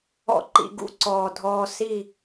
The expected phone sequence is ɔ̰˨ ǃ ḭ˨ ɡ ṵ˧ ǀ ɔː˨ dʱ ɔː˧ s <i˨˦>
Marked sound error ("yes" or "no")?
yes